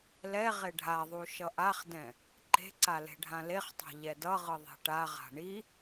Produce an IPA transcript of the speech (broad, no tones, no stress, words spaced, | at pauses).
lɛ ʁeɖʱaðˤu ʃʌʔaχdɛ̃ | ǃe̤ǀa le̤ɖʱãleχtˤa̤ ʎɛdʌʁɯ ðˤe̤ʈaʁa̤ ɳi